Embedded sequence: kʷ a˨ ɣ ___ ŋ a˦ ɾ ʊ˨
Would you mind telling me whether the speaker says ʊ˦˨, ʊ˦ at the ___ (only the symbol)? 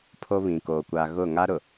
ʊ˦˨